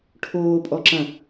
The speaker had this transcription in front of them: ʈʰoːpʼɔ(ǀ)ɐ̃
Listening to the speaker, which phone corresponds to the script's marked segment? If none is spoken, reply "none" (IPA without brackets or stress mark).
ǁ